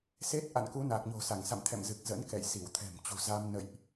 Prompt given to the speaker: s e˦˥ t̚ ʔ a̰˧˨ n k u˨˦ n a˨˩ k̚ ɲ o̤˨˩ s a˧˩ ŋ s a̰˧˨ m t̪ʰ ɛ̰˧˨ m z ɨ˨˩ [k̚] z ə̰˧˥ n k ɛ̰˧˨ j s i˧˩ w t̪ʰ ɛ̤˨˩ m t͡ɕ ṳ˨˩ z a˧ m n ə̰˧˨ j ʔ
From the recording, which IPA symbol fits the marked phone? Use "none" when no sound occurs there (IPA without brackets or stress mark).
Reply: k̚